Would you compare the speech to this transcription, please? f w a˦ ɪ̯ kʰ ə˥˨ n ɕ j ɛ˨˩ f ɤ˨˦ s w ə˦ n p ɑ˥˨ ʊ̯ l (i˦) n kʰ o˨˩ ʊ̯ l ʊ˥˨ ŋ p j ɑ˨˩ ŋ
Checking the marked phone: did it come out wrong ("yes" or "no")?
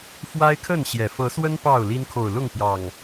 no